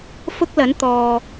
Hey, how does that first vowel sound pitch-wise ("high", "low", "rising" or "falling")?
high